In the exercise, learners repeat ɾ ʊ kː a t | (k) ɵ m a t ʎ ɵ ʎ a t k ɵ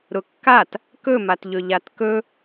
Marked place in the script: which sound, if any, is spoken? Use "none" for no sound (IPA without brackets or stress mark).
k